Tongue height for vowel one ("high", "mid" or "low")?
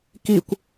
high